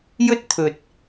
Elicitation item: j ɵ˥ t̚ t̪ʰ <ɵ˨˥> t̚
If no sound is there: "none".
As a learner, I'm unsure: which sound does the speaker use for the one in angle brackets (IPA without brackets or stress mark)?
ɵ˨